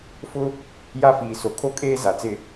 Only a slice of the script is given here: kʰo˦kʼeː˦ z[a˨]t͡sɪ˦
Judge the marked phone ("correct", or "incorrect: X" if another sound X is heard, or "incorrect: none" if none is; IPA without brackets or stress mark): correct